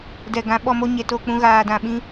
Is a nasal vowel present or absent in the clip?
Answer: present